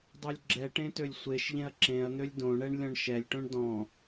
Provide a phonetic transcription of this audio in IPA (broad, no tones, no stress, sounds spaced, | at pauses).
dˤ o lʲ ɡ͡ǁ ɛ ʈ ẽ t ø lʲ sʷ e ʃ ʎ ẽ ɐ̯ ǁ ẽ ɐ̯ n̪ ø lʲ d õ ɳ ɛ ɳ lʲ ɔ̃ ɳ ʃ ɛ lʲ ʈ õ ɳ d ɔ̃